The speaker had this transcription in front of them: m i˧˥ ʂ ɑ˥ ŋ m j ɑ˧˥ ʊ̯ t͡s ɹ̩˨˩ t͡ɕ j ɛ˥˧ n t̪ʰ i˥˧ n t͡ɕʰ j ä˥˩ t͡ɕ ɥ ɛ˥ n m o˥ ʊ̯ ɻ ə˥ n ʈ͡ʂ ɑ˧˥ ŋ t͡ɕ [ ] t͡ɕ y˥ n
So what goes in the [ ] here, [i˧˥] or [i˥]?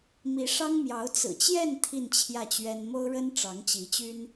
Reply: i˧˥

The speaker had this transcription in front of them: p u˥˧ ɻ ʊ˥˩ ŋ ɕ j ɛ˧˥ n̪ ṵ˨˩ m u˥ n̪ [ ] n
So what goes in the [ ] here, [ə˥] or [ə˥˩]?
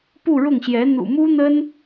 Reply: ə˥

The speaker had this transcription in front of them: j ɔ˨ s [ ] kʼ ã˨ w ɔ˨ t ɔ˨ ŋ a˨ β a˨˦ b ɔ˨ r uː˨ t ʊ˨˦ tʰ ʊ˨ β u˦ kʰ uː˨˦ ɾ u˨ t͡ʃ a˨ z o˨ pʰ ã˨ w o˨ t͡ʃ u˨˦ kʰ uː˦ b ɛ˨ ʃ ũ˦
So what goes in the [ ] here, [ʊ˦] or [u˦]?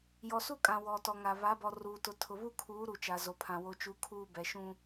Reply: u˦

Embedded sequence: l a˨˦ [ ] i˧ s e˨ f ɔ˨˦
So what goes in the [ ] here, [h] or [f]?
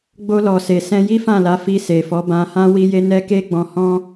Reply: f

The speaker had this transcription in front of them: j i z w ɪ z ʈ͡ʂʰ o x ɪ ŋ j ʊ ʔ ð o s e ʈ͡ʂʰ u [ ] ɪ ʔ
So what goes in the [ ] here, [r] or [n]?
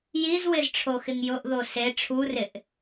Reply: r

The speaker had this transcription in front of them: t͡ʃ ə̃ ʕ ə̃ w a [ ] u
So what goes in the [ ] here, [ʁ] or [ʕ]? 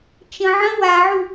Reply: ʕ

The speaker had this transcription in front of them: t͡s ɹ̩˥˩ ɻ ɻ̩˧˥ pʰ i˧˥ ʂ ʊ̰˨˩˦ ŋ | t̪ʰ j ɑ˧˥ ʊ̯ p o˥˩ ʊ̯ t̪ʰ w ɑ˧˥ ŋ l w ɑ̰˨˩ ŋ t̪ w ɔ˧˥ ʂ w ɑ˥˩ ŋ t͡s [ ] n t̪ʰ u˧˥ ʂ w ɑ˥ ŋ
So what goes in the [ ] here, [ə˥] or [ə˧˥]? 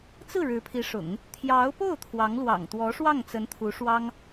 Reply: ə˧˥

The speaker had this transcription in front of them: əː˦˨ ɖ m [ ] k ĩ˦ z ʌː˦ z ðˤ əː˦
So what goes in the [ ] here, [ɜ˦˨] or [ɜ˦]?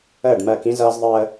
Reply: ɜ˦˨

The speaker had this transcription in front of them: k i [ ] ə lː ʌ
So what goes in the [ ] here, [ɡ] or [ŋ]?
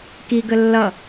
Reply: ɡ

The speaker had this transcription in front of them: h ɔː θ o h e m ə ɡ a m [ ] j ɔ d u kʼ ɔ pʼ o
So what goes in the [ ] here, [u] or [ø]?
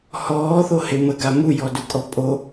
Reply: u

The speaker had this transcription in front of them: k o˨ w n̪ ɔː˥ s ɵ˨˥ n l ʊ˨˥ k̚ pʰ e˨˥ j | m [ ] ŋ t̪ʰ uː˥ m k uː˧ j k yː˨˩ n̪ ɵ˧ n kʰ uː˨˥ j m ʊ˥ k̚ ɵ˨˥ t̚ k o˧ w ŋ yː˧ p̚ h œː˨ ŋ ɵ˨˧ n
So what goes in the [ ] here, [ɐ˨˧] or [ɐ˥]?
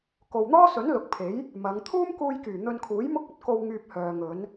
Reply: ɐ˨˧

